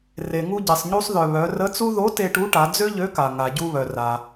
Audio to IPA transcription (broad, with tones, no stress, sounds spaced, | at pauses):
r e˩ ŋ u˧ ɟ e˩ sˤ ɲ u˧ sˤ ð œ˩ β œ˩˧ r ə˧˥ t͡s u˥ ð o˧˥ t e˧ ʈ u˧˥ ʈ a˩˧ d͡z ø˥ ʎ ø˧˥ k a˩ ŋ a˩ ɟ u˧ β œ˩ r a˩